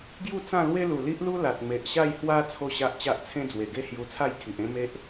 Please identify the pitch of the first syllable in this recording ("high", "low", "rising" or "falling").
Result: falling